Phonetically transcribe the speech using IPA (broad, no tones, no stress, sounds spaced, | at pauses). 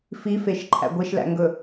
f i f e ʃ ǃʰ æ̰ ɡʷ e ʃ l æ̰ ŋ ɡ ɵ